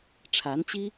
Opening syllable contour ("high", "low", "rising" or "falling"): rising